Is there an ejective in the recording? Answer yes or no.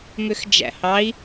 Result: no